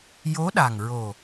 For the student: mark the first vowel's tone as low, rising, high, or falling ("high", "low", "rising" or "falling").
rising